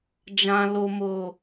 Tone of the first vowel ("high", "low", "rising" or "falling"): low